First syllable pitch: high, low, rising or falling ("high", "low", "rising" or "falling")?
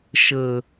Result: low